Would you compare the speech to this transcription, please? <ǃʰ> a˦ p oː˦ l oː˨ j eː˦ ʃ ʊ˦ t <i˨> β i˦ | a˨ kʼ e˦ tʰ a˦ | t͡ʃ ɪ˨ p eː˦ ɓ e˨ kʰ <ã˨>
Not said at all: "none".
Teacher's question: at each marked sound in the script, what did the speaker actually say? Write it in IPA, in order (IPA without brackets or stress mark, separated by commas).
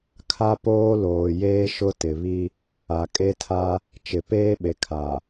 kʰ, ɪ˨, a˨